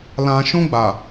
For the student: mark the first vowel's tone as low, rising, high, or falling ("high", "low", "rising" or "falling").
low